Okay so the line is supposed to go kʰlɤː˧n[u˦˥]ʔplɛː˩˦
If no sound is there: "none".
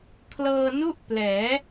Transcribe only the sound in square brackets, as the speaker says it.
u˥˩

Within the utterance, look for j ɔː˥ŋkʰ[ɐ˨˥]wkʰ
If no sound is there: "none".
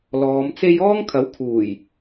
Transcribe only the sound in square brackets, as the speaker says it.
ɐ˨˥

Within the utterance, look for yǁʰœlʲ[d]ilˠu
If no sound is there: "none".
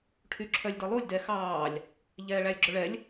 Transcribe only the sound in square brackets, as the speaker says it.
d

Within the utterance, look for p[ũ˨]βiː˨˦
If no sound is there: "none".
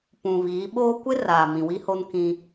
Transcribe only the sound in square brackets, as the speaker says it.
ũ˨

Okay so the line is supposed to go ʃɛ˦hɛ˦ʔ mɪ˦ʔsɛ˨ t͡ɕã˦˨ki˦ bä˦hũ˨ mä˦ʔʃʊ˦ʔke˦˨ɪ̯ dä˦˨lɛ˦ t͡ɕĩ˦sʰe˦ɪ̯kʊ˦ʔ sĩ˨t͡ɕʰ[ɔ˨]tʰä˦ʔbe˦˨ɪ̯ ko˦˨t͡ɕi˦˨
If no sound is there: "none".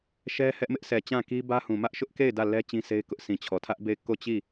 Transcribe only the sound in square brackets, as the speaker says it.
ɔ˨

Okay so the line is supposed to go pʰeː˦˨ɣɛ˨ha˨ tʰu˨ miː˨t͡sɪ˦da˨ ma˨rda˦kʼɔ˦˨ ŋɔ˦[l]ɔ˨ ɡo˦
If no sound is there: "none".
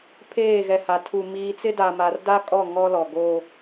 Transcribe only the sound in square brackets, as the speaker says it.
l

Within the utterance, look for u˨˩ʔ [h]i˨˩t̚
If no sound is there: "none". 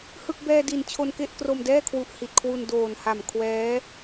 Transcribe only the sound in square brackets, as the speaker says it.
h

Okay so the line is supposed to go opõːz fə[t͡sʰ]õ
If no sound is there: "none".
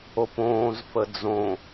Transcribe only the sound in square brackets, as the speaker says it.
d͡z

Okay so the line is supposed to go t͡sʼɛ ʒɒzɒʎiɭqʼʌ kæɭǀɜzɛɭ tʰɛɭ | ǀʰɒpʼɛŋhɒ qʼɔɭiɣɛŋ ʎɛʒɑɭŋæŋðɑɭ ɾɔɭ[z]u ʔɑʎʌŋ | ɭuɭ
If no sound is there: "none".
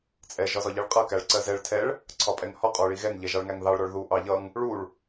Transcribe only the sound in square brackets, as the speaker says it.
ð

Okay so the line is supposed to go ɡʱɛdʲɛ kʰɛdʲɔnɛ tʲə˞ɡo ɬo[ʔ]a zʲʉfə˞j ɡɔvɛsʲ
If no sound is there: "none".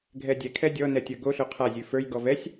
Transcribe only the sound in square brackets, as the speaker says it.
qʰ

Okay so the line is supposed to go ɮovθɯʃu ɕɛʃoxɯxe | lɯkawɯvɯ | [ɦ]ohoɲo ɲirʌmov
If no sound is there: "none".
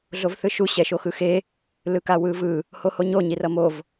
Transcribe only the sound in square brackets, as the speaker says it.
h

